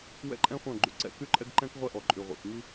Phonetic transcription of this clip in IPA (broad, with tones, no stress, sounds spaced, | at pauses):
w ɛ̰˦ ǃʼ ɛ̃˦ χʷ œ̃˦˨ ɡ͡ǃ y˨ ǀ ɛ̰˦ k y˦ ǃʼ ɛ˦ ɡ ǃ ɛ̃˦ k ʁʷ ɛ˦ ʔ ɔ˨ ǃʼ y˨ ʁʷ ḛ˨ x ŋ i˦